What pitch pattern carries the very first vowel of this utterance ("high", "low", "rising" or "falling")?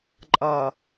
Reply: low